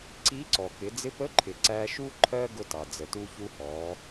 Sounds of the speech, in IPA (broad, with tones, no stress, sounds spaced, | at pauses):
ǀ i˧˥ ǀ ɔ˩ k ɪ˩˧ d͡z ɪ˧˥ p ə˧˥ ǃʰ ɪ˩ ǀ æ˧ ʃ u˥ ǃʰ ɜ˥ ɡ ʊ˧ t ɑ˩ d͡z ə˩ t u˧ ç u˧ h ɔ˩˧